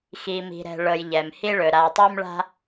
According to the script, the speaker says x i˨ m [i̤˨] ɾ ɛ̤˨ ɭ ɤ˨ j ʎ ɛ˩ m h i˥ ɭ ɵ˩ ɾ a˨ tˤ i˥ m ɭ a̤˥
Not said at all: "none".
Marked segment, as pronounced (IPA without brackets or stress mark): i̤˨